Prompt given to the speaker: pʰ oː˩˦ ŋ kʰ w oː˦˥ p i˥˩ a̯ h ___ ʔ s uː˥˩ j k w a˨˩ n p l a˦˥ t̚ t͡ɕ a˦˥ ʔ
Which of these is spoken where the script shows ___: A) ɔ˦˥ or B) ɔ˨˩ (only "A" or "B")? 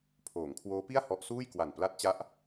A